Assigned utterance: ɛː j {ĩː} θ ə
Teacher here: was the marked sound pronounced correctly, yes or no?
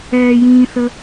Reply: yes